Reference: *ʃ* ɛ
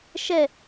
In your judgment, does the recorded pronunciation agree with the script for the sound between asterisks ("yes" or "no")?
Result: yes